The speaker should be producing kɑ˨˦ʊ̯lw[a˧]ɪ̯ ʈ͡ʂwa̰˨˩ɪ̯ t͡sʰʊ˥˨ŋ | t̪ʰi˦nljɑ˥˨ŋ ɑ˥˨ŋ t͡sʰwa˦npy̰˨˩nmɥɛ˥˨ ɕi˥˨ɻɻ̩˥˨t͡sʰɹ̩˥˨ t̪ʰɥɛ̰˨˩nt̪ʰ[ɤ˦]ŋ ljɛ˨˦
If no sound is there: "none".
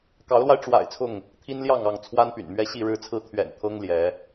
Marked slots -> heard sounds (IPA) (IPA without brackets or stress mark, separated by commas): a˧, ɤ˦